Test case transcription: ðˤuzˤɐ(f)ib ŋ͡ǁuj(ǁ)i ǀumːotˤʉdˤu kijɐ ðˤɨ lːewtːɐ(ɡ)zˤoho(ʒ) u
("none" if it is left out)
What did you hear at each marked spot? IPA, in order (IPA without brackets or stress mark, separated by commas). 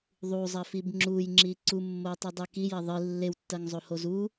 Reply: f, ŋ͡ǁ, ŋ, z